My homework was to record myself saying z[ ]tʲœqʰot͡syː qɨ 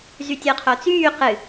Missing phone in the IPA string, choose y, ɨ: y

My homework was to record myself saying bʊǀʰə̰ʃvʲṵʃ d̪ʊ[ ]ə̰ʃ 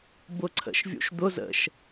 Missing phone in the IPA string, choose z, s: z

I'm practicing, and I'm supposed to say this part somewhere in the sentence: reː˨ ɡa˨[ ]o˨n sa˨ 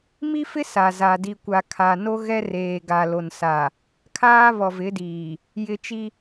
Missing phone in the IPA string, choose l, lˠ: l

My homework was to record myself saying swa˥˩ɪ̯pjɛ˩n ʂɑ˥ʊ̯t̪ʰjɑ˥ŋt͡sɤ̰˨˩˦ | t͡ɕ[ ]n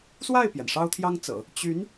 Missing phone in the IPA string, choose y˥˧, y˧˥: y˧˥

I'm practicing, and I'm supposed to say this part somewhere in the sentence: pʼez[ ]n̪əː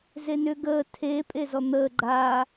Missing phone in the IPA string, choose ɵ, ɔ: ɔ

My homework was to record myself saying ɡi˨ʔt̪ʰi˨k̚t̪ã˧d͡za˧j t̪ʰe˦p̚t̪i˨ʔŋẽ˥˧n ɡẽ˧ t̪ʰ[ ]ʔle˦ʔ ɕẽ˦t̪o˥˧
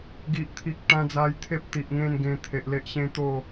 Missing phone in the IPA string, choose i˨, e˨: e˨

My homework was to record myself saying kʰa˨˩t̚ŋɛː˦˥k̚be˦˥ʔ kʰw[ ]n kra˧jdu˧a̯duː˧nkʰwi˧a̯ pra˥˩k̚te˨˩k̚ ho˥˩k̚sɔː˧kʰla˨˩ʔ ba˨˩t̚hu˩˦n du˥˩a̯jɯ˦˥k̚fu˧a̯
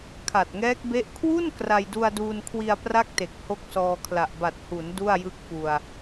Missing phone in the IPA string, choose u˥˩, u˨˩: u˥˩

